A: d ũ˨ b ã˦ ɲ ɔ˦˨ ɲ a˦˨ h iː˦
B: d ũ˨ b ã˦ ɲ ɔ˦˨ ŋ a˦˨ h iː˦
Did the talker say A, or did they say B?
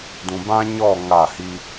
B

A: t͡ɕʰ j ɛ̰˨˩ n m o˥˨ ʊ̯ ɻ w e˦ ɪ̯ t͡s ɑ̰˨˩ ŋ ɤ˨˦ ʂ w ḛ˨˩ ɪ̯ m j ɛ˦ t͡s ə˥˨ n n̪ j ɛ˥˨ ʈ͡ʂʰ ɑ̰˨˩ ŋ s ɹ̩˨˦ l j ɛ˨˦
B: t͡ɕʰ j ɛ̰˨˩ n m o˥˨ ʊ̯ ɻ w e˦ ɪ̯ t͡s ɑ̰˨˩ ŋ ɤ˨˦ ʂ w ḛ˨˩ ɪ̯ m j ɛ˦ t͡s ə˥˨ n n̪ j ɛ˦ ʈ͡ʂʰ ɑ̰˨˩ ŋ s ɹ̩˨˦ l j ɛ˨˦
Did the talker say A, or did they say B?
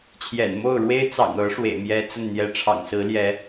B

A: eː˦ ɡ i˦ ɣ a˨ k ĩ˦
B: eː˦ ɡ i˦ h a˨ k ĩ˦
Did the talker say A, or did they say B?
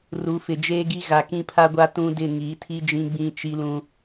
A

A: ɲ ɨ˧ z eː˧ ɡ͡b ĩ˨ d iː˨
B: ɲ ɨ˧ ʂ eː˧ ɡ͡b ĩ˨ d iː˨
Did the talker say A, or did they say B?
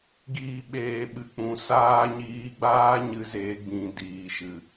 A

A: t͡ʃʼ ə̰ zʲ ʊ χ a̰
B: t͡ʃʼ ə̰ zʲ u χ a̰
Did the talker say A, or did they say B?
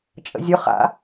A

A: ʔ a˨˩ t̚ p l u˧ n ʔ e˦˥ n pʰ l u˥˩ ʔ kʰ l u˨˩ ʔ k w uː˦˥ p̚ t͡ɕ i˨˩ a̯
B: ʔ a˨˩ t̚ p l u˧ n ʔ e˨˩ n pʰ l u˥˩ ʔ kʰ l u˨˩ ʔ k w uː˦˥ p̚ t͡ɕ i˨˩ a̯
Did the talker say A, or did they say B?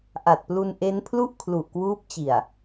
A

